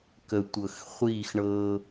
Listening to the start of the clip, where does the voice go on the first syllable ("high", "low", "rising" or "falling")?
low